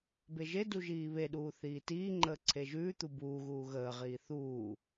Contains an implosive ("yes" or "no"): yes